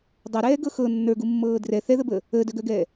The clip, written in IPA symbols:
dˤœɾɛːɡɤ xɤ nːə˞ɡumːɤː drɛ θɛðəbəː | əːdœɡœɡɛː

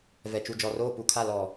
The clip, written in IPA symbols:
vɛ˨t͡ʃu˨d͡ʒɔ˨roː˦˨ pu˦˨kʰa˦˨ lɔ˨

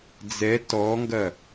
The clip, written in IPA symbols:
d͡zɛ tɔŋɡɐ

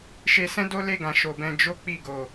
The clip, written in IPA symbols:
ʃe˧ sɛ̃˦do˦le˦˨ ɡã˨ʃo˨bɛ̃˧ d͡ʒo˦k͡pi˦˨ɡo˨

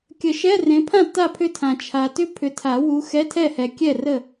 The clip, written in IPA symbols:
kʲə˨˩˦ʃɛ˧˥˧ rẽ˨˦pʰã˥˨ ta˥˨pʰʏ˥˨tʰã˨ t͡ʃʰa˨tʏ˥ pʰʏ˨˦tʰa˨˩˦wu˨˦ xɛ˧˥˧tʰɛ˥˨hɛ˨ kʲɛ˥˨rə˥˨

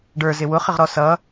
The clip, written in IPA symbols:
ɖə˞zɪ wʊχɪʁɾɔ sʌ

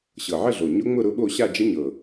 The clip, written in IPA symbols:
ɕɤ˨˩ʕə˥˧ɮo˨˩ ɲʊ˦˥ŋ͡mʊ˥˧ ɾʊ˦˥ɓo˥˧ ɕa˥˧d͡ʒə˦˥ɲɤ˨˩

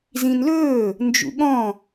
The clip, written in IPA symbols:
zĩnlɵː | nd͡ʒṵɠɔ̃

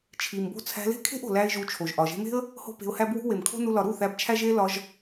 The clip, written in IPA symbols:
t͡ʃʰi˨mbo̤˦ t͡sʰæ̤˧le̤˦kʰe̤˦ʔ o̤˨læ˦ɪ̯ʒu˧ t͡ʃʰo˨ʒʔɒ˨ ʒe̤˧me̤˦ə̯ | ho̤˦pe̤˧ʊ̯hæ˦bwṳ˦ we˨mkʰo̤˦nu˧ lɒ˨ɾu˦˨ θæ˧bt͡ʃʰæ˦ʒe˦ lɒ˧ʒ

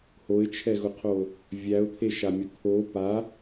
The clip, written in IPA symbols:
hoɪ̯t͡ʃʰɛɣʊqʰo | vʲæʊ̯t̪ʰeʃamʲʊ t̪ʰo pa

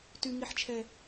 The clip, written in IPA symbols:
tyŋiħt͡ʃʰɛ

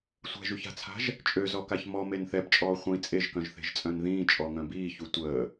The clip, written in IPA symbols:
sʷɛ̤ʒyça̤t͡sʰa̤ʒ | t͡ʃʼøzɔkaç mɔmen θɛbt͡ʃʼɔː χʷĩ t͡sʼeʒkœ̃ʒθe̤ʒt͡sʼœ̃n ðĩːt͡ʃʼɔŋœ̃ biːçu tʷəː

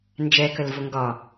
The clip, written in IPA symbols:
nd͡ʒɛkəlvʊ ŋɡɒ

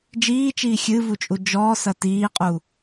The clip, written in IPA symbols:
d͡ʒiːt͡ʃiː xʲɨvut͡ʃʼu d͡ʒɔːsɐ tiːqʼu

